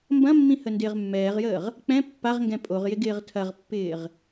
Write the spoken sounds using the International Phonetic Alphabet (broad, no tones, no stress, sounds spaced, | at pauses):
m b ɐ̃ mː ĩ h ə n d ɪː ʁ mː ɛː ʁ j əː ʁ | k͡p ɛ̃ pː a ʁ ŋ ɡ ɛ̃ pʼ o ʁ j ɪ ɡ ɪː ʁ tʰ ɐ ʁ pː ɪː ʁ